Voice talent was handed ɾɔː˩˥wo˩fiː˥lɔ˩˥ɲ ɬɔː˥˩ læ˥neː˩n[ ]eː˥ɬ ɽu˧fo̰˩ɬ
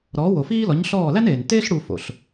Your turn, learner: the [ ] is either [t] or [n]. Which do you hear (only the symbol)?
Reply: t